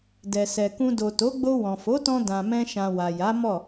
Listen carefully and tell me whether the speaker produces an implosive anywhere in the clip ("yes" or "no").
no